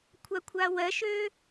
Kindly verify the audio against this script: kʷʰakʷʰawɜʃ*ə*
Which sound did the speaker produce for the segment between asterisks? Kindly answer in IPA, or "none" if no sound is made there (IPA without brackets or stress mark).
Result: ø